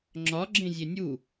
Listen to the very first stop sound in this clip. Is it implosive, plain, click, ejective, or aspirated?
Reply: click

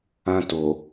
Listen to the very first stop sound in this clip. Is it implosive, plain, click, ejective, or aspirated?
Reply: plain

